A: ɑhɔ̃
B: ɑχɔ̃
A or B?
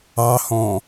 A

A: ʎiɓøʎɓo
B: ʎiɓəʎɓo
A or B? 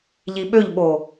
A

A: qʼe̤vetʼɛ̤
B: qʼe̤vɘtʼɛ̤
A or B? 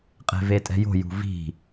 A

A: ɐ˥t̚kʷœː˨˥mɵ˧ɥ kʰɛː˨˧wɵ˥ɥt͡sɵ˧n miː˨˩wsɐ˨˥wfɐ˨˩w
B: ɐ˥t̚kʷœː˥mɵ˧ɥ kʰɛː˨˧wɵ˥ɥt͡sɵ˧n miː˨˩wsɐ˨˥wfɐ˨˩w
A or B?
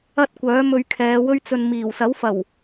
A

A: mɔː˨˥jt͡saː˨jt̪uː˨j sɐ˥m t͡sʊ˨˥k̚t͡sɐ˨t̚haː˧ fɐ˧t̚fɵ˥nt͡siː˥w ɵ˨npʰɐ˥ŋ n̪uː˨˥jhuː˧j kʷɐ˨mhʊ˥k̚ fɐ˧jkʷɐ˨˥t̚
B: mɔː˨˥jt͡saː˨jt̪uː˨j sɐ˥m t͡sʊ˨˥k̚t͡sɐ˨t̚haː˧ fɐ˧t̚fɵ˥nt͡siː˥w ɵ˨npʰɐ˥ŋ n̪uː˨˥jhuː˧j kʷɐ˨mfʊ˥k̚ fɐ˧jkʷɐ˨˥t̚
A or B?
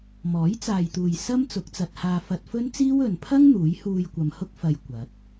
A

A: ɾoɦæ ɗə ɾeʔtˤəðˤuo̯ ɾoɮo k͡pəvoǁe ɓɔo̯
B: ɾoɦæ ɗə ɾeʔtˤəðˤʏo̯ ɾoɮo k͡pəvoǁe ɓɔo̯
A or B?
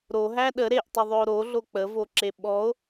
B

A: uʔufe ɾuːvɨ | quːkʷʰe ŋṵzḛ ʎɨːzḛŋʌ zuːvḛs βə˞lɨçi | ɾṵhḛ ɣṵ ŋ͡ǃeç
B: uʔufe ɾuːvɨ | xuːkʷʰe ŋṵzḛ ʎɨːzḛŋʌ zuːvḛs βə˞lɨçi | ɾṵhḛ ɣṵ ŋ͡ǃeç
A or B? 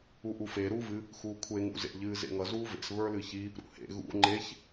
B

